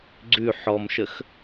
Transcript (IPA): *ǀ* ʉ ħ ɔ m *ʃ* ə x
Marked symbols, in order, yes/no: no, yes

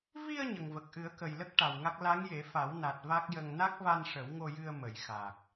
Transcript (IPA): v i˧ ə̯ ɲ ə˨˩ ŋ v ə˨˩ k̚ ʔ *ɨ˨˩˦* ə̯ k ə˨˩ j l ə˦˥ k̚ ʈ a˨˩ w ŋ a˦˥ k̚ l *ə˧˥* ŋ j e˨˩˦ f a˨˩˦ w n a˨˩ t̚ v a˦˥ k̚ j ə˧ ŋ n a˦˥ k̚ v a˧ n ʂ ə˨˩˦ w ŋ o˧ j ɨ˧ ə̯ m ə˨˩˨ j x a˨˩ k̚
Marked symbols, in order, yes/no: yes, no

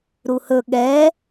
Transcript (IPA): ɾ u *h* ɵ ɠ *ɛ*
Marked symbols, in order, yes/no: yes, yes

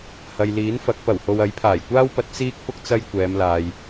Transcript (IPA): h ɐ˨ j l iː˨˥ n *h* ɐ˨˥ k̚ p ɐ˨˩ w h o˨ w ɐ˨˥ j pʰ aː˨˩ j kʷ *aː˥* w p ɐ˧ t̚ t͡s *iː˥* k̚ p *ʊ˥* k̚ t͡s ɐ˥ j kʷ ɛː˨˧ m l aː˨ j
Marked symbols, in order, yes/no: no, yes, yes, yes

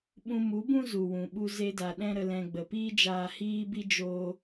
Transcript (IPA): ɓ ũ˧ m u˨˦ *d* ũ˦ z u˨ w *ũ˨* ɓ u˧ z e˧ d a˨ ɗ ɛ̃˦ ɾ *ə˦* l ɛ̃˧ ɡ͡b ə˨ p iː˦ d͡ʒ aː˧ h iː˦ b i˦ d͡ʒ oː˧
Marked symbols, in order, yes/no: no, yes, no

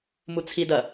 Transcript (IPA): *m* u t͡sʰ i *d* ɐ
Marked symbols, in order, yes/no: yes, yes

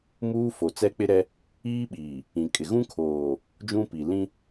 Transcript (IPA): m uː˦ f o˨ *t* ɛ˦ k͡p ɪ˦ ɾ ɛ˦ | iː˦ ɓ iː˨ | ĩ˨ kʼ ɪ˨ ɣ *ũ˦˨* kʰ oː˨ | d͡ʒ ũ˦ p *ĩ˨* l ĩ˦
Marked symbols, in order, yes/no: no, no, no

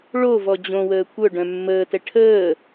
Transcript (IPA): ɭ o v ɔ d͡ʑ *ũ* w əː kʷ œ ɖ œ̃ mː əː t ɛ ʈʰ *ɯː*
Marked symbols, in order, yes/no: no, no

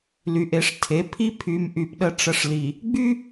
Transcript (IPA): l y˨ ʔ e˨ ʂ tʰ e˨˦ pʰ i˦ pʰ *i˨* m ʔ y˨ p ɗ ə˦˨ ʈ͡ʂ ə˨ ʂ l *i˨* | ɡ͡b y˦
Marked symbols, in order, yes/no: no, yes

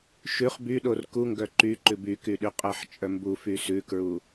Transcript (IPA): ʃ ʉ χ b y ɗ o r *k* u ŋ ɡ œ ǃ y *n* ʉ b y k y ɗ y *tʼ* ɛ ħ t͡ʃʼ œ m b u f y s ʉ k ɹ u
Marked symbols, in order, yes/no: yes, no, no

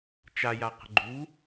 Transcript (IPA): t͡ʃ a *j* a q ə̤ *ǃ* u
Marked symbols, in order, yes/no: yes, no

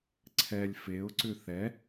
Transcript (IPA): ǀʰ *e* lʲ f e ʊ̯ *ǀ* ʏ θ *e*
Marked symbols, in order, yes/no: no, yes, no

